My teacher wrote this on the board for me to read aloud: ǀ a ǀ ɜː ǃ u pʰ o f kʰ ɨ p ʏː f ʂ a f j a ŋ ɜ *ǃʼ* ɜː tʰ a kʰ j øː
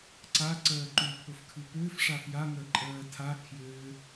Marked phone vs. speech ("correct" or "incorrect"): correct